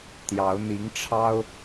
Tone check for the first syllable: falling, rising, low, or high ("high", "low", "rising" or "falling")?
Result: rising